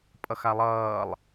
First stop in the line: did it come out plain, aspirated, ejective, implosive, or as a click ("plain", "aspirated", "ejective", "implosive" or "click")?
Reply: ejective